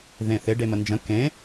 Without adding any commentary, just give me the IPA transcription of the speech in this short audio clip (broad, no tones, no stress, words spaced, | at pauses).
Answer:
ðẽθɪ ɖemənd͡ʒə̃ kẽ